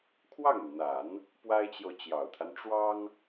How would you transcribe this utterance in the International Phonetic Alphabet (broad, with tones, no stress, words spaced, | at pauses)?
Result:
kʰwɑ˥˩ŋy˩nn̪a˨˩˦n | pwa˥ɪ̯t͡ɕjo˨ʊ̯ t͡ɕjɑ˨˩ʊ̯t̪ʰa˦n ʈ͡ʂwɑ˥ŋ